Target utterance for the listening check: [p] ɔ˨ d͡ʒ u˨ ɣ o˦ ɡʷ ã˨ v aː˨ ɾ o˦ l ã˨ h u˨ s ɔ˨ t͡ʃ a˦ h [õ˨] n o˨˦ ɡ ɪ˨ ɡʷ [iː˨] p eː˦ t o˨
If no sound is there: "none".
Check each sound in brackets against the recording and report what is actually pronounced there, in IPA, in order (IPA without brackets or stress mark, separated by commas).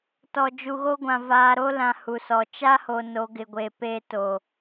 t, o˨, eː˨